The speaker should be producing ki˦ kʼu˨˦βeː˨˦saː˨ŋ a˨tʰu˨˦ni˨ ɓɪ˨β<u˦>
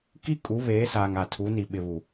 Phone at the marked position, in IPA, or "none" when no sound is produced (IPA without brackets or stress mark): u˨